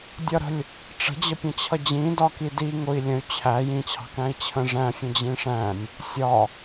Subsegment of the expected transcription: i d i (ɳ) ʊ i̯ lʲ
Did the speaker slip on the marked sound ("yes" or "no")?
yes